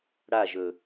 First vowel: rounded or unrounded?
unrounded